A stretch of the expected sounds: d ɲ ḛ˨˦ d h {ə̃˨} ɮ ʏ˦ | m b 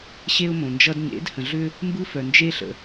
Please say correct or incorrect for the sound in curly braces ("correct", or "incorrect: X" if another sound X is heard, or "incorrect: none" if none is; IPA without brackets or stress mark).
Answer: correct